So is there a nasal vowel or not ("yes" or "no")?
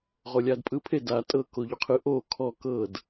no